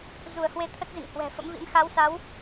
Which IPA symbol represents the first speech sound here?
z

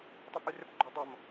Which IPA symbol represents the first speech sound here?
tˤ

